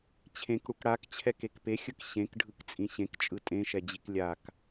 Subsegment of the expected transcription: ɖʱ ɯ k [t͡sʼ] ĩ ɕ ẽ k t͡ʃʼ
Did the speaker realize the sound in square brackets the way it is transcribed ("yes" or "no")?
yes